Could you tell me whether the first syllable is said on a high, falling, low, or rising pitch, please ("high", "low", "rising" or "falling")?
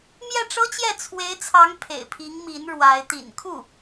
falling